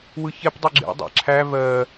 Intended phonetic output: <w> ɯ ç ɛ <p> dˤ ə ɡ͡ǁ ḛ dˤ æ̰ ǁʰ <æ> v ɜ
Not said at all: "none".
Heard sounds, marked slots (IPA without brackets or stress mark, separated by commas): w, p, æ